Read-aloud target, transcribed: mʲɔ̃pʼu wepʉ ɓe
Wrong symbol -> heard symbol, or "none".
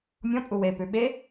none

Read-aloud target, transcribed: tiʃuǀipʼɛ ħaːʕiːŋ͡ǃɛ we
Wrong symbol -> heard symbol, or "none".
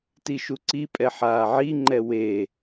iː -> i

